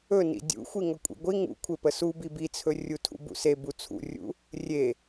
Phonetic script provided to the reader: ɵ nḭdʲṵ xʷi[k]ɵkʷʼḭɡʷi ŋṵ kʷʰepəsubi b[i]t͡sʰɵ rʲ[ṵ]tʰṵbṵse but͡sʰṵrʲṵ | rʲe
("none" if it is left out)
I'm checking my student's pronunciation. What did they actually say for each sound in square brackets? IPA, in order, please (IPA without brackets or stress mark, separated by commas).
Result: ŋ, i, u